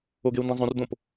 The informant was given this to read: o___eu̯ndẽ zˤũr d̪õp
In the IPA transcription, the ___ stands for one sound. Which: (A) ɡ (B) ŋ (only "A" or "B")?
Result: A